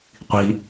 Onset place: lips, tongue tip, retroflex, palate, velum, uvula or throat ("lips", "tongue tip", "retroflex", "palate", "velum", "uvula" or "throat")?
uvula